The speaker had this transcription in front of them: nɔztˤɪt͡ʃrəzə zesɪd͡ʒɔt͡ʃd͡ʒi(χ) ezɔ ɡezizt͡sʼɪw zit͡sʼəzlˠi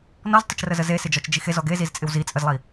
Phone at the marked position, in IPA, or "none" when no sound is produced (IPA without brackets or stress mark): x